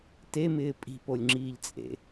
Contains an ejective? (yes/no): yes